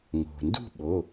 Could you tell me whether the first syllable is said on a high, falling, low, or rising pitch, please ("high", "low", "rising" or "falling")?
low